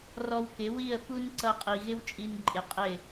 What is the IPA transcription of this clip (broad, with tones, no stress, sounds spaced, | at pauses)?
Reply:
r ɔ˧ w k ɪ˨˦ w i˦˨ ə̯ f u˦ n ǀ ʌ˧ qʼ i˨ ɣ ɪ˦ w t͡ʃʼ i˧ n ǃʼ ɪ˨˦ qʼ ɪ˦˨